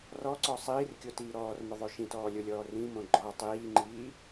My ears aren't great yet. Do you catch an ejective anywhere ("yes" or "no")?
no